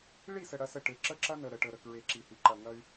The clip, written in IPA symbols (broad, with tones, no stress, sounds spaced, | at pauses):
ɭ i˦˨ s ə˨ ɽ ɐ˦ s ə˦˨ ʈ e˨ ǁ ə˦ ǁ ɐ˦ n ə˨ ɾ ə˨ ʈ ə˨ ɾ ə˨ k ɹ e˨ ǁ i˨ h i˨ ǃ ɐ˨ ŋ ɐ˦ y̯